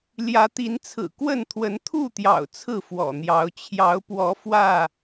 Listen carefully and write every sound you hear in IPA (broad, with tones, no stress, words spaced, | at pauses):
ljä˨˦t̪i˨˦nt͡sʰɹ̩˨˩ kwə˥˨nt̪ʰwə˨˦n t̪ʰu˥˨t̪jɑ̰˨˩ʊ̯ t͡sʰɹ̩˥˨fwɔ̰˨˩n̪jɑ˨˦ʊ̯ t͡ɕʰjɑ˨˦ʊ̯ pwɔ˨˦ fwä˥˨